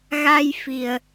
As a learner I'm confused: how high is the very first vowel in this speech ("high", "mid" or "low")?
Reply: low